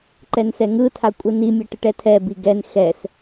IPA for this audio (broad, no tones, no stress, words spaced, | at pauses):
ǃɛnsɛŋɯtʰa kʷʼɯnimʲʌ ʈɯʈɛtʰɛbi ɡɛn xɛs